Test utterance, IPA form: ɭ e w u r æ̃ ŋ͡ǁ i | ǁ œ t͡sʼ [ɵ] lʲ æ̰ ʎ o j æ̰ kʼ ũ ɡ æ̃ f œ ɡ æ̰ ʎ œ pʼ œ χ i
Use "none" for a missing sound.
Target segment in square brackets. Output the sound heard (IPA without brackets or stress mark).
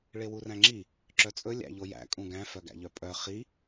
ɵ